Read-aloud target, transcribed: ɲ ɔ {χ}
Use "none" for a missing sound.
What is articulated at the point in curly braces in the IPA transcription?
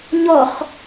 χ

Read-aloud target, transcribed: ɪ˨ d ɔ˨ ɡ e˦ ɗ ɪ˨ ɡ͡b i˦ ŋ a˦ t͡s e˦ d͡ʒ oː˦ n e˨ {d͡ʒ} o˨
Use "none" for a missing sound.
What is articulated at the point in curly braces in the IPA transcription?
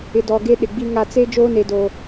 d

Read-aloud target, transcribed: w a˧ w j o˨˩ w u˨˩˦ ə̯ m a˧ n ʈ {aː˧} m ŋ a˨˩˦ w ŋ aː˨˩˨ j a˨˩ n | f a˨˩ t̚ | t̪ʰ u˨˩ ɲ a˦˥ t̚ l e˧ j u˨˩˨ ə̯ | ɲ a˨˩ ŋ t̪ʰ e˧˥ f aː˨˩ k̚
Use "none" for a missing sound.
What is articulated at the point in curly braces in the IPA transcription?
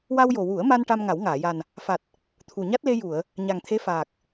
a˧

